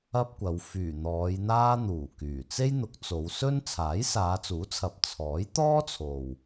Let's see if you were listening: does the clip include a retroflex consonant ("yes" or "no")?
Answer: no